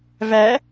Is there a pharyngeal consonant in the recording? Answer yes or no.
no